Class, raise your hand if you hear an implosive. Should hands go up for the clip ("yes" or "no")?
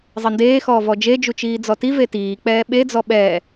yes